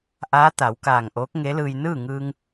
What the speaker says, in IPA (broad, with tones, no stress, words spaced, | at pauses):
ʔaː˧˥t̪a˩˧wkaː˧˩ŋ ʔoː˧˥k̚ŋe˧˥lɯː˧j nɯː˥˨ŋɯː˧ŋ